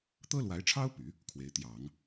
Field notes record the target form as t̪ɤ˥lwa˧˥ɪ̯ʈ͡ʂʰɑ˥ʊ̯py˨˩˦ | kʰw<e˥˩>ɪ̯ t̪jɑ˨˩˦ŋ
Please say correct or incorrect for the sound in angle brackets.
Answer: incorrect